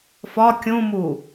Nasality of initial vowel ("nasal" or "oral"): oral